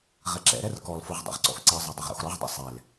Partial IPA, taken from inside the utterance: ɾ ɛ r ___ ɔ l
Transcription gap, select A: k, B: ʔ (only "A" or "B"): A